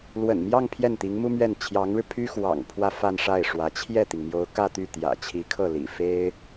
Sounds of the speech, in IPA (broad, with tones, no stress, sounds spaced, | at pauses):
l w ə̰˨˩ n m j ɑ˥˧ ŋ pʰ j ɛ˥˩ n t̪ i˧˥ ŋ m u˥ m ɥ ɛ˥˩ n t͡ɕʰ j ɑ˧˥ ŋ ɻ ɻ̩˧ pʰ y˥ x w ɑ̰˨˩ ŋ pʰ w ä˥˧ f a˥˧ n ʂ a˥˩ ɪ̯ ʂ w ä˧˥ t͡ɕʰ j ɛ˥˩ t̪ i˩ ŋ m j o˧˥ ʊ̯ k ä˥˧ t̪ y˥˩ t̪ j ä̰˨˩ t͡ɕʰ i˧˥ kʰ ɤ˥˩ l ḭ˨˩ f e˥ ɪ̯